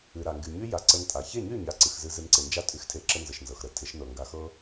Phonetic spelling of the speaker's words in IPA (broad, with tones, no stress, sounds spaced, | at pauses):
ɨ˨ ɾ a˨ ŋ ɡ y˨ ɲ y˦ j a˨ ǀ ə˧ n tʼ a˨ ç e˦˨ ɲ y˦˨ ɲ a˧ ǀ ɨ˨ x z ɨ˧ z ɨ˧ n ǀ ɪ˨ n d͡ʒ a˦ tʼ y˦ x tʰ e˧ ǁ ə˦ n z ə˨ ʃ n z ɤ˨ x ɾ ə˨˦ tʰ ɪ˨˦ ʃ n ɤ˨ ŋ ɡ a˨ x ɤ˦